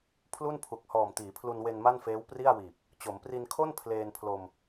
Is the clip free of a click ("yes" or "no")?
yes